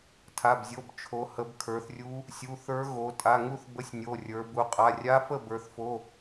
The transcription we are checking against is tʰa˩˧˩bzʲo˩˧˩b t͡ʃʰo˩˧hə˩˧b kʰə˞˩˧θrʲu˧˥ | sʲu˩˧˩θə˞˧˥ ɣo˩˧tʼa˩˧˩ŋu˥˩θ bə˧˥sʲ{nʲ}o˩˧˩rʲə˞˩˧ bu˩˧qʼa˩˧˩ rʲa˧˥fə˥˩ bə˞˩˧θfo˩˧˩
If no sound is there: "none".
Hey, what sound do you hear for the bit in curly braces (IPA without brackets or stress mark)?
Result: nʲ